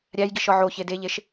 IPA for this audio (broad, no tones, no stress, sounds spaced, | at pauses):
ɾʲ æ j ɡ i ʃ ɒ ʕ o ç e d e ʎ e ʃ